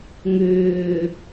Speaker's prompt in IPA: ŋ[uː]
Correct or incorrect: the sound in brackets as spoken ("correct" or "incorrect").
incorrect